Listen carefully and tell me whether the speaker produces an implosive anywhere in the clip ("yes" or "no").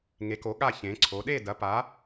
yes